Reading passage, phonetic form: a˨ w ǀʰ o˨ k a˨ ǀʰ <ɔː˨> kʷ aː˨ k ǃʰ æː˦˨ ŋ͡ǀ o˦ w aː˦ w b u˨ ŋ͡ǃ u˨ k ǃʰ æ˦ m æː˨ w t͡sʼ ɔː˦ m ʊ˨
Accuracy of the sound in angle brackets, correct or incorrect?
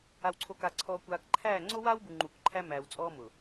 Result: correct